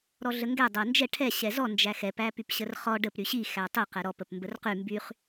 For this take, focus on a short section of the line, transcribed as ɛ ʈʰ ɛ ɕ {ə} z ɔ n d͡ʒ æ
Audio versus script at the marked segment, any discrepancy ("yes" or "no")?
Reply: yes